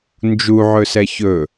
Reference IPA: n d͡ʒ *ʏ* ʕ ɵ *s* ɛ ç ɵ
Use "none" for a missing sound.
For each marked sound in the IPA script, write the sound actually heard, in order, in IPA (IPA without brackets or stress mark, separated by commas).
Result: u, s